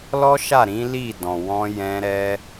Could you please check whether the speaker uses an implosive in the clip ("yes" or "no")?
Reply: no